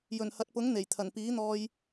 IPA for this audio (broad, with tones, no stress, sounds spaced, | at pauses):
j ɵ˨˩ n h ɐ˨ t̚ p ʊ˨˥ ŋ n̪ e˨˩ j t̪ʰ ɐ˨˩ n p iː˨˥ n̪ ɔː˧ j